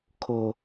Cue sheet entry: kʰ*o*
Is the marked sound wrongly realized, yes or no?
no